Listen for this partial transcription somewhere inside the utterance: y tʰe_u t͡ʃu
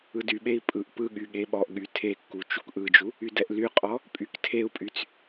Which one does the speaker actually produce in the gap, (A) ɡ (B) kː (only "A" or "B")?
B